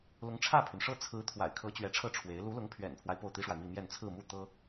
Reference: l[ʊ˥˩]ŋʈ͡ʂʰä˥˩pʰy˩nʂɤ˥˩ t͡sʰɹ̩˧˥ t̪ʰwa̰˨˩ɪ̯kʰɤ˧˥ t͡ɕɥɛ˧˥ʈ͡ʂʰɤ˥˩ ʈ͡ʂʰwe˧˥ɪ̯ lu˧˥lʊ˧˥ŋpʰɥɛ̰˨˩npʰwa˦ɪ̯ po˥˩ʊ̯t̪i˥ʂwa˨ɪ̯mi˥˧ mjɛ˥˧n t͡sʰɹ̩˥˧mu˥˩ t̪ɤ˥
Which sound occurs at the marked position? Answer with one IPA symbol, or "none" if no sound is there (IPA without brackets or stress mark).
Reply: ʊ˧˥